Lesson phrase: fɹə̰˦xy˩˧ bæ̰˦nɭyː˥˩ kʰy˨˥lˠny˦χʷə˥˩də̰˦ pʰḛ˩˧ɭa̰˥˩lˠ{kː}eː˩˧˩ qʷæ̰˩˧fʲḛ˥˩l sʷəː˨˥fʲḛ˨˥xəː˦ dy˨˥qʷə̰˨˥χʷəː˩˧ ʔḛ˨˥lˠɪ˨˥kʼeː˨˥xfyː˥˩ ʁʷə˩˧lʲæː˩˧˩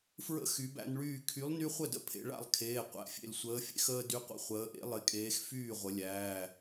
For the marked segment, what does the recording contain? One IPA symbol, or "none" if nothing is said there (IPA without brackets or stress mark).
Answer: kʰ